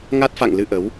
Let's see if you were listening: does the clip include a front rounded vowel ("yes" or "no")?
no